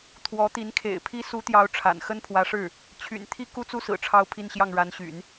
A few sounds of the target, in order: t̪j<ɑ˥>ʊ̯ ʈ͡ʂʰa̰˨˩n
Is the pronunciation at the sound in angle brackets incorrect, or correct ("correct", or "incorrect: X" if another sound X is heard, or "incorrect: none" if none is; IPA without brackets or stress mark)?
incorrect: ɑ˧˥